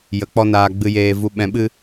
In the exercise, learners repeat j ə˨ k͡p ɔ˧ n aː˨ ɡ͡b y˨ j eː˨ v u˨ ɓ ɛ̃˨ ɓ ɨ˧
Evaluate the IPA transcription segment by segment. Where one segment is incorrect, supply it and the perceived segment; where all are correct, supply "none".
y˨ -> ɨ˨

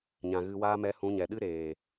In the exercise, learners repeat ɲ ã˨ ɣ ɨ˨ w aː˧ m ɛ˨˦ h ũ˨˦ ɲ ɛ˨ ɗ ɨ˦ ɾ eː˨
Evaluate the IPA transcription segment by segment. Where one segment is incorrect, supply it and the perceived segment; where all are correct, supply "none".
none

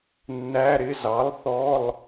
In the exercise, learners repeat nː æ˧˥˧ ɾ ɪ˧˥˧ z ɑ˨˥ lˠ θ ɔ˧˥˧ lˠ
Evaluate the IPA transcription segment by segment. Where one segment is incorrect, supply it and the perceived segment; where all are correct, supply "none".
none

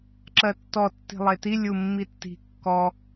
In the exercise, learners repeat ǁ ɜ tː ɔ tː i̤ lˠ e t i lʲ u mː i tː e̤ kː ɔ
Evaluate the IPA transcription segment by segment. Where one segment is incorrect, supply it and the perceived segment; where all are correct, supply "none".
e̤ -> i̤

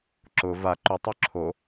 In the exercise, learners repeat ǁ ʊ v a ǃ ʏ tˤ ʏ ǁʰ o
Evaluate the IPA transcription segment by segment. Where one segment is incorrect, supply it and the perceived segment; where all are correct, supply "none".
none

